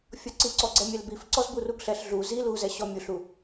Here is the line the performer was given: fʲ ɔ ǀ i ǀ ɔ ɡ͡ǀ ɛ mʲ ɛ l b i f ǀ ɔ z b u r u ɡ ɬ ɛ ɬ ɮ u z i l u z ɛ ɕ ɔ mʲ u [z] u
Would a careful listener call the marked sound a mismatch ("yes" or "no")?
yes